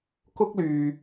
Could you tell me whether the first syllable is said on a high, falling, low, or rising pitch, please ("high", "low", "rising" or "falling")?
high